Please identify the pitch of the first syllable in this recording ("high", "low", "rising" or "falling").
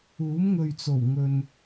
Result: rising